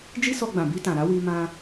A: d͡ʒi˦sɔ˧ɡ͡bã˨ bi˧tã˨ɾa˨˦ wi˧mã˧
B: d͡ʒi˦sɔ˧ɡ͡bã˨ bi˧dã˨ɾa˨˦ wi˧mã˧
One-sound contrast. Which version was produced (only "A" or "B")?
A